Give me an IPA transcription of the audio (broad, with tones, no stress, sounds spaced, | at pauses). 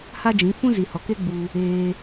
h a˦ d͡ʒ ĩ˨˦ f ũ˦ z i˨ h ɔ˨ k e˦ ɡ͡b u˧ | eː˧